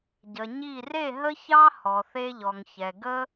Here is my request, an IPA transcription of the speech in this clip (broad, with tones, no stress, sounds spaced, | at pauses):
ɟ ə˨ ɲ i˦˨ r e˦˨ ɦ ə˦ ç ɑ˦ h ɔ˨ θ e˦ ʎ ɔ˨ ŋ ç ɛ˨ ɡ ə˦